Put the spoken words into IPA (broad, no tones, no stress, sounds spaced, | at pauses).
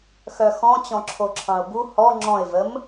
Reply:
x œ x ɔ̃ t͡ɕ ɔ̃ ǁʰ o ǁʰ ɑ̃ ʊ̯ b u h ɔ ŋ͡ǁ ɔ̃ ɪ̯ v ə m